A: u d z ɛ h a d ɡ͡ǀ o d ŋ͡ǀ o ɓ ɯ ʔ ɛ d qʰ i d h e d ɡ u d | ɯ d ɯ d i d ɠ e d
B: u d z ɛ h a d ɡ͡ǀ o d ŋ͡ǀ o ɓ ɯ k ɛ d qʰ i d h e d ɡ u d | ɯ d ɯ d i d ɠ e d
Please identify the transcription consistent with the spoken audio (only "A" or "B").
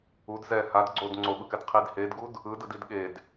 B